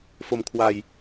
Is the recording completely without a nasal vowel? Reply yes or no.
yes